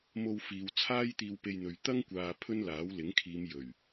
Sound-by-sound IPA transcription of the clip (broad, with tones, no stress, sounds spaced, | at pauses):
m o˧ w f iː˨ w t͡sʰ aː˥ j t̪ iː˧ w p e˧ j n̪ ɵ˨ ɥ t̪ ɐ˥ ŋ kʷ aː˨ pʰ ɵ˥ n l aː˨˥ w l ɪ˨˥ ŋ kʰ iː˨˧ m j ɵ˨˩ ɥ